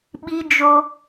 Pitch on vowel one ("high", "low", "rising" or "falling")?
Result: high